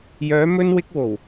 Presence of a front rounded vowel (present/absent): present